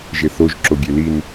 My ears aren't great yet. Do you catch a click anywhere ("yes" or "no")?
yes